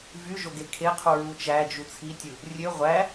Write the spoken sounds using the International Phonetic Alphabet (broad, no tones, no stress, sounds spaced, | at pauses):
v y ʒ o ɡ e kʰ e qʰ u ɹ u t͡ʃ æ d͡ʒ u t͡sʰ i tʲ ɯ | rʲ ø ʁʷ æ